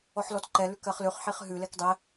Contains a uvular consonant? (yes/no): yes